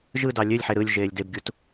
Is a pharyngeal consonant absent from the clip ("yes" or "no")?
no